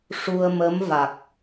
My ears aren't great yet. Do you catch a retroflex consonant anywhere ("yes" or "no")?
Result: yes